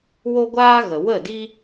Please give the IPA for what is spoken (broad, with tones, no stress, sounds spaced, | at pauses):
w o˦ ɡʷ aː˦ ɣ ə˨ w ə˦˨ d i˦